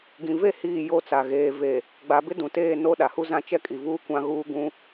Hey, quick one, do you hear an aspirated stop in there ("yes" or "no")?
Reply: no